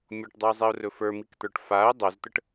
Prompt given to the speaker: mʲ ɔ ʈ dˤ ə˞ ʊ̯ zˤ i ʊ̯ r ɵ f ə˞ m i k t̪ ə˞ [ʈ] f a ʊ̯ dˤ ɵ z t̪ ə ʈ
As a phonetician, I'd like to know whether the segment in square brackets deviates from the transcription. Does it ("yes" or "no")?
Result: no